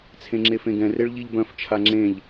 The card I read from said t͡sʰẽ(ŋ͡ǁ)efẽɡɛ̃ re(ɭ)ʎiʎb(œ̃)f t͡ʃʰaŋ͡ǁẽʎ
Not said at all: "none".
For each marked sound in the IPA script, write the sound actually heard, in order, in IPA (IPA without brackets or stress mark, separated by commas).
ŋ͡ǁ, ɭ, œ̃